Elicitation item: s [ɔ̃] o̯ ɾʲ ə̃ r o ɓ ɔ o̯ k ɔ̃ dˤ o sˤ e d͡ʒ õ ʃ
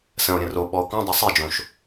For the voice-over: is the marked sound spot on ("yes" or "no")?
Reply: no